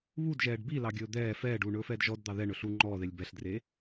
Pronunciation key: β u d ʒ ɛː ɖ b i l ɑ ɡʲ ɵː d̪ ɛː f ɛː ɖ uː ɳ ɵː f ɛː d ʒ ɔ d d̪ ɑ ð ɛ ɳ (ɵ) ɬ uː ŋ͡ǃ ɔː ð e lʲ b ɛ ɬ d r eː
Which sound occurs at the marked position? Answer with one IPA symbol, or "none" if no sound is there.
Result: ɵ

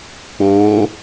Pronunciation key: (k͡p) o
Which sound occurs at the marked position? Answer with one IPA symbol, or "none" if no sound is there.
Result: k͡p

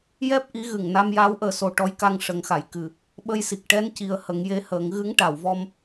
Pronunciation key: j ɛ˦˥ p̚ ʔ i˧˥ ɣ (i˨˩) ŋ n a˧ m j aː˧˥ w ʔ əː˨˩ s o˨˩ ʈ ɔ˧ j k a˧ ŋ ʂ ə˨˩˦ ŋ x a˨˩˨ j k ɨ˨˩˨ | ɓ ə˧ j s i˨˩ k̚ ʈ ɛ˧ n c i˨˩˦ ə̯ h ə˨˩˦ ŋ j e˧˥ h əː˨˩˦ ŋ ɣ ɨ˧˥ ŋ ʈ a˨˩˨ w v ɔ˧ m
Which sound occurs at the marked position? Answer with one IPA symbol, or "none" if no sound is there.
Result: ɨ˨˩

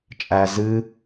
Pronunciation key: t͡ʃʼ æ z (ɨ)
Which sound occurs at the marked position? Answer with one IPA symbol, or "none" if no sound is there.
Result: ɨ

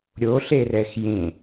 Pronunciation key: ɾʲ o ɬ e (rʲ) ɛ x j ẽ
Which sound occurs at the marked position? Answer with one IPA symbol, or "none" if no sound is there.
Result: r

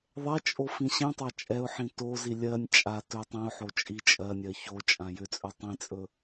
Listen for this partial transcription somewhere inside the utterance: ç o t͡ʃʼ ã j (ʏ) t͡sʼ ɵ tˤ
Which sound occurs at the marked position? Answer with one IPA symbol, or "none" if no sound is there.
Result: ʏ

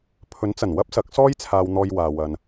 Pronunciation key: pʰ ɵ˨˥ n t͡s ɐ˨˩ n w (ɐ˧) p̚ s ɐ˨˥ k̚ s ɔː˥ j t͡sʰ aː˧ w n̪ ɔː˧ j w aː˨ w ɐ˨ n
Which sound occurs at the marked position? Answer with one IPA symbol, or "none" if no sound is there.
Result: ɐ˥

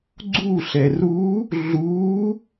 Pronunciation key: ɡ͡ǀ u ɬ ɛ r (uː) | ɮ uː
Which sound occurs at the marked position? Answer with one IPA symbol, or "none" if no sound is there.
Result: uː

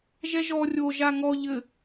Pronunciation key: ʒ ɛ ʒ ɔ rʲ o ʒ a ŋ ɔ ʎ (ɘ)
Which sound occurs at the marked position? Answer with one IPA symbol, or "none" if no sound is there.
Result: ɘ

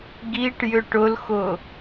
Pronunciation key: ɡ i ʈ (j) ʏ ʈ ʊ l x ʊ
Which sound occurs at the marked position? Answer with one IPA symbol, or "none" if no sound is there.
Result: j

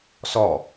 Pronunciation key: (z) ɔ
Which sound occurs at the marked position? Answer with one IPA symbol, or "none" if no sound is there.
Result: s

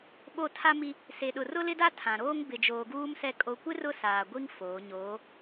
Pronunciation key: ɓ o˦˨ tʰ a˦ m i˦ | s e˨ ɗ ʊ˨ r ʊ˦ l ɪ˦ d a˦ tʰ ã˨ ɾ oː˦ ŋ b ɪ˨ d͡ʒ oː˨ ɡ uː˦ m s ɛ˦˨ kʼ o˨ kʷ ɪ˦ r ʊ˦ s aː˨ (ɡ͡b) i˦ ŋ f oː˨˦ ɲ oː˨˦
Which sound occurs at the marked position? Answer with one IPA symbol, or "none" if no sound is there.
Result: ɡʷ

